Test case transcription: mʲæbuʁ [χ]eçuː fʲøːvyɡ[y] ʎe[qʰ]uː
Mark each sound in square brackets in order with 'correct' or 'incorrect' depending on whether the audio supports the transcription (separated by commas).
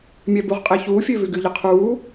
incorrect, correct, correct